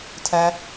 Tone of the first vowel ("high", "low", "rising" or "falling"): low